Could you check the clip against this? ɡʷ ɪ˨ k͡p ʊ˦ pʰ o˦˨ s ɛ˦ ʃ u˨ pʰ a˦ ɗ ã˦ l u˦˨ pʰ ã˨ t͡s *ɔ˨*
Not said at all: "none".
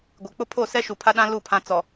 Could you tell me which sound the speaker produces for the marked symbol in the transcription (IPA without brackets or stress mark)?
ɔ˨